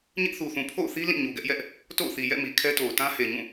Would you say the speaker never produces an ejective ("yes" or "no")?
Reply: yes